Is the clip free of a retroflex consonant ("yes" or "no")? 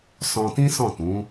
yes